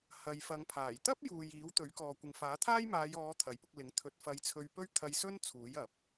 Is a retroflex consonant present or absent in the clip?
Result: absent